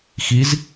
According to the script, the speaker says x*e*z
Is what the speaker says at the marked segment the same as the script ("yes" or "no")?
no